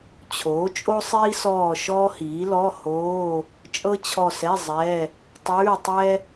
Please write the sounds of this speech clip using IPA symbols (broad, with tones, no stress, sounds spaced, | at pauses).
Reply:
t͡ɕʰ oː˩˥ t͡ʃʼ o˥ sˤ iː˥ s ɔː˦˨ ʃ ɔː˥ h iː˩˥ l ɔ˧˥˧ h oː˧˥˧ | t͡ʃʼ ɤ˥ t͡ɕʰ ɔ˦˨ s ɛ˧˥˧ zˤ ɛ˧˥˧ | tˤ ʉː˧˥˧ tˤ ɛ˥